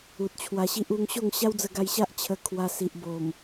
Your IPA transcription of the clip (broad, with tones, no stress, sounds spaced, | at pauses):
u˨ t̚ t͡ɕʰ w a˧ ɕ i˦ ʔ u˧ ŋ ɕ o˥˧ ŋ ɕ a˦ w d͡z ə˧ ɡ a˧ j ɕ a˦ ʔ t͡ɕʰ ə˧ kʰ w a˧ s i˨ ʔ b o˨˩ m